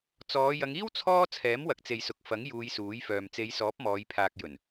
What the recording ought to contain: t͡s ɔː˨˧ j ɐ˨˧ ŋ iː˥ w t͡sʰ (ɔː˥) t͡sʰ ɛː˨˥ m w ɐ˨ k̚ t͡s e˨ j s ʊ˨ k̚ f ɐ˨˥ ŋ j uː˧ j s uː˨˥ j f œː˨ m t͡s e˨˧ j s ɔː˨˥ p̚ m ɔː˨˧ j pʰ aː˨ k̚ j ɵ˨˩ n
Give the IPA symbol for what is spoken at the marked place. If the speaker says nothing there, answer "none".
ɔː˥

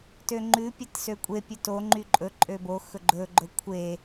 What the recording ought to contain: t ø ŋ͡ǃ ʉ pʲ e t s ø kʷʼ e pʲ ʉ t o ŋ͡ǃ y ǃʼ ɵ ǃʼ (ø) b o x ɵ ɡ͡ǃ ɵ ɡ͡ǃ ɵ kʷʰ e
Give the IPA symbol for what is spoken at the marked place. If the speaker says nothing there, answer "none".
ø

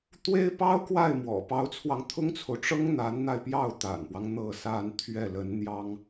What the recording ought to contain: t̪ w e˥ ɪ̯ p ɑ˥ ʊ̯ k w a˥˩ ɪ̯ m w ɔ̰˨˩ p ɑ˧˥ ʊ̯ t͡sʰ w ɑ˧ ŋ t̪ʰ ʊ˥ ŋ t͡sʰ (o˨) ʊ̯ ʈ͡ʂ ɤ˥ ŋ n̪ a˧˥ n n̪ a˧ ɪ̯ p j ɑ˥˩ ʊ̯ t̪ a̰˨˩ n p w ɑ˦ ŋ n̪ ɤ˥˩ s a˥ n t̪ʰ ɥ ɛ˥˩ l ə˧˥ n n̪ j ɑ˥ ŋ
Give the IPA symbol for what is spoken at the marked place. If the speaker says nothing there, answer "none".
o˨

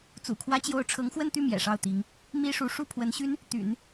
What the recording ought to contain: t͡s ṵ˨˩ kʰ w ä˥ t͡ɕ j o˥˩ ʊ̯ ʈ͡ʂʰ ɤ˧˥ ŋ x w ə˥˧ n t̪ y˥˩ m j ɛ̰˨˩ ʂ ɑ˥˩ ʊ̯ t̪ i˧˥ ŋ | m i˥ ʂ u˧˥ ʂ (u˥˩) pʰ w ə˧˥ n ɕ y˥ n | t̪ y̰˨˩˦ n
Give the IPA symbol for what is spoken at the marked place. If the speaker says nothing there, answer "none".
u˥˩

